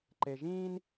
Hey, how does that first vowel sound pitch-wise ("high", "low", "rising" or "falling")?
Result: low